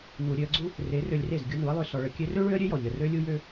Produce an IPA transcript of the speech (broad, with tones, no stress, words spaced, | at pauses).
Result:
nu˨ɾʲø˧ə̯ɡ͡ǀu˦ | re˨˦rø˧lʲre˦˨z ɡʲu˧nu˨˦ə̯lˠø˧ sɔ˧ɭə˧kʲø˦ rø˦ ɭø˦ə̯ɾʲø˦jɔ˨ ʎə˨rø˦lʲu˦jø˦